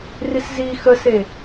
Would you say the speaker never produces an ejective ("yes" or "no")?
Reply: yes